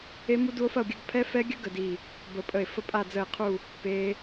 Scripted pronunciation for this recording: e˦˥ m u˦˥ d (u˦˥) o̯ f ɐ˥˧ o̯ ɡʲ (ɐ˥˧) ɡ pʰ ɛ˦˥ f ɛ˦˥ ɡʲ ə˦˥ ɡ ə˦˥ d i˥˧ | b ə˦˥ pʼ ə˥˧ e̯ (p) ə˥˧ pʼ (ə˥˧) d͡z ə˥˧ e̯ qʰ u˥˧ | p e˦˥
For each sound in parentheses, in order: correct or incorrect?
correct, correct, incorrect, incorrect

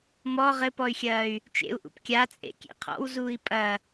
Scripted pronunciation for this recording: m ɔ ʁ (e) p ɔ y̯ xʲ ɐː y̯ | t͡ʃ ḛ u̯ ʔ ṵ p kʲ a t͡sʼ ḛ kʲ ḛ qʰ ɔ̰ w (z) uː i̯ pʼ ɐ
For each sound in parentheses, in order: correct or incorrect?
incorrect, correct

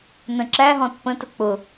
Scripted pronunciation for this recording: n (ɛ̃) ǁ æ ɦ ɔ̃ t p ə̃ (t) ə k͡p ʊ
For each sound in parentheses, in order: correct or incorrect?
incorrect, correct

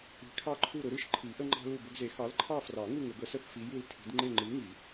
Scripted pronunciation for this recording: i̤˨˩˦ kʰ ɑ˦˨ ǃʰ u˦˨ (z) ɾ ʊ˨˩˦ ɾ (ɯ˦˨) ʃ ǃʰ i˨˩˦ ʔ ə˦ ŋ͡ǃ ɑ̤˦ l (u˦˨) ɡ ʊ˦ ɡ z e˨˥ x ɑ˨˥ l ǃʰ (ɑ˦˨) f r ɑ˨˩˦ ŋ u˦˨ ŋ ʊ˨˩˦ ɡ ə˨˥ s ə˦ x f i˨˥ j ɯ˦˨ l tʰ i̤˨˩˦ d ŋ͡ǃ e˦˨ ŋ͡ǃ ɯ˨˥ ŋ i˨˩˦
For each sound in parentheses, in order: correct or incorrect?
incorrect, correct, correct, correct

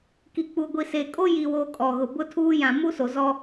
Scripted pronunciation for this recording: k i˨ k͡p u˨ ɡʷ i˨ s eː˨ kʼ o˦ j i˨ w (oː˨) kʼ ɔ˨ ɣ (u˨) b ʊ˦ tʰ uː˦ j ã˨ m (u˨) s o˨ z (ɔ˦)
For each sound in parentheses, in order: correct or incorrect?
correct, incorrect, incorrect, correct

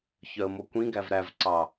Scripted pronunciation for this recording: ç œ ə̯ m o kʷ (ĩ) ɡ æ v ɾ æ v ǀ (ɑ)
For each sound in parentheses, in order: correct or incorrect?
correct, correct

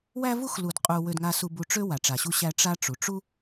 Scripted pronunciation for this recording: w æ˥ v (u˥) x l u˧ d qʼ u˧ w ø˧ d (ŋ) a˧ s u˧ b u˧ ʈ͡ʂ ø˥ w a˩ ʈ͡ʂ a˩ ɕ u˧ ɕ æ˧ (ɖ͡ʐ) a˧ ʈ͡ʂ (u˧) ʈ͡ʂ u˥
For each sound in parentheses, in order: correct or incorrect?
correct, correct, incorrect, incorrect

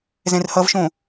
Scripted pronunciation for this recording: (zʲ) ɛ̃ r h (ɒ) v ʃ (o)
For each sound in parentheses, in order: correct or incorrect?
incorrect, incorrect, incorrect

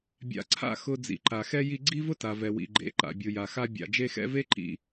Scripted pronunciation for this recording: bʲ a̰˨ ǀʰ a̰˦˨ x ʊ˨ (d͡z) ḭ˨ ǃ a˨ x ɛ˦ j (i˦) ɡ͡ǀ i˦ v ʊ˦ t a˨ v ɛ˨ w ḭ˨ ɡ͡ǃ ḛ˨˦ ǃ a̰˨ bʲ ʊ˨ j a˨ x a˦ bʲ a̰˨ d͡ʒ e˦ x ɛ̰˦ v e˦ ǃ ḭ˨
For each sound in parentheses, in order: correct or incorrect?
correct, correct

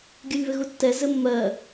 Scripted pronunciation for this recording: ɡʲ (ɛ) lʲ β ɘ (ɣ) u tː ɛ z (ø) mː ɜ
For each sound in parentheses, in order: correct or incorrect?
incorrect, correct, incorrect

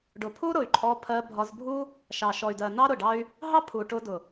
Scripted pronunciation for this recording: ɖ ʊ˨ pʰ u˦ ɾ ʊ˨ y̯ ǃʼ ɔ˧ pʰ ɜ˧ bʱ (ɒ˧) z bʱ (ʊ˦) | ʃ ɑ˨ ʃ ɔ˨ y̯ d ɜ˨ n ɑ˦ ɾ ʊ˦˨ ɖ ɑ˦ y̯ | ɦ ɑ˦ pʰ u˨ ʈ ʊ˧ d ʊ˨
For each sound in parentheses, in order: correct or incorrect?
correct, incorrect

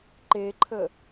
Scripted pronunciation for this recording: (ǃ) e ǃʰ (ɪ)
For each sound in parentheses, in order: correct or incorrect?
correct, incorrect

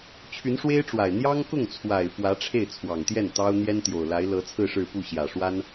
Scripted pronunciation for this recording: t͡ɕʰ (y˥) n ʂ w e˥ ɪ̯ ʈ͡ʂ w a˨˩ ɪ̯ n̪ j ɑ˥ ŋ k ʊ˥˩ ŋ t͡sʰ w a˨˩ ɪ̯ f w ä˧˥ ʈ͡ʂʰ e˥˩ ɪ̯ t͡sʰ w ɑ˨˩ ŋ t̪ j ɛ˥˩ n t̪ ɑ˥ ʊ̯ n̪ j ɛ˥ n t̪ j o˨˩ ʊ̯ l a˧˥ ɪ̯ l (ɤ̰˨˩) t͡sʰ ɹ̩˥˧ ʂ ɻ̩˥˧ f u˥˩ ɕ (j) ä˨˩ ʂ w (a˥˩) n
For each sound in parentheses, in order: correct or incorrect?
incorrect, incorrect, correct, incorrect

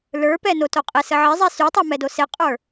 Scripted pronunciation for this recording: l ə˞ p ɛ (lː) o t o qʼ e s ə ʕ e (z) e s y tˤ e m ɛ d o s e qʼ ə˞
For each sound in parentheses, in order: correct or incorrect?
incorrect, incorrect

